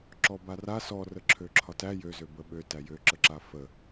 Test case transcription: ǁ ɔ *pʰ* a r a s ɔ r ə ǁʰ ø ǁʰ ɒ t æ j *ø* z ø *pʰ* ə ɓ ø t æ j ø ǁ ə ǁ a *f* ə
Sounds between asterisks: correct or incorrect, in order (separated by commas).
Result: incorrect, correct, incorrect, correct